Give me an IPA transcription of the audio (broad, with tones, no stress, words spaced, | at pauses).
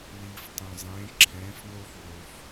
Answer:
liː˩ftˤœ̃˩ zˤẽː˩˧ǁʰɛ̃ː˩˧fnoː˧f wo˩f